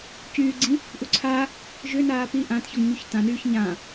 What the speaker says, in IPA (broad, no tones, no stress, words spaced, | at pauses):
cyːɡ͡ǀĩ | ʔuǀʰa | ʒʏnaː pi ʔãtçɔŋɲyç tãnyːç ɲã